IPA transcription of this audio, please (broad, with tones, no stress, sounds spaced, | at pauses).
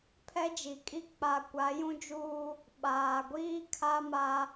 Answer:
pʰ ɛ˦ d͡ʒ i˨ kʼ i˦ k͡p a˨ kʷ a˨˦ j ũ˦ d͡ʒ uː˦ | ɓ aː˨ ɡʷ iː˦ kʰ a˦ m a˦